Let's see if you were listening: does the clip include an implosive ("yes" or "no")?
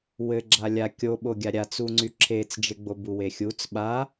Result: yes